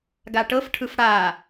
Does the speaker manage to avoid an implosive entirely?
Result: yes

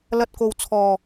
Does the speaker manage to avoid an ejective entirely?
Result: yes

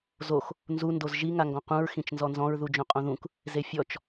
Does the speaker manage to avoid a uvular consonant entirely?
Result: no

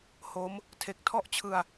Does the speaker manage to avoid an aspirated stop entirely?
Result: no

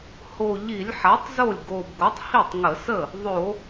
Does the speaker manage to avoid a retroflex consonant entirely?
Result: yes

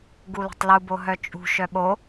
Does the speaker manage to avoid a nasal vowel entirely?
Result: yes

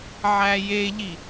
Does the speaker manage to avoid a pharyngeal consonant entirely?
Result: no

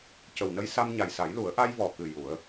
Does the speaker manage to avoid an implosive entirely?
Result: yes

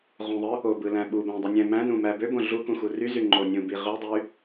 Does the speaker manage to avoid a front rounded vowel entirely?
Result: no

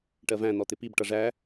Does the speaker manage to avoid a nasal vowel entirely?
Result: no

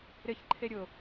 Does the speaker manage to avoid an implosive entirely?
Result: yes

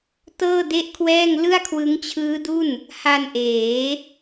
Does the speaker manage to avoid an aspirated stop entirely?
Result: no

